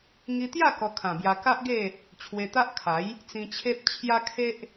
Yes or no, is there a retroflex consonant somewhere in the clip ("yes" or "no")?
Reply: no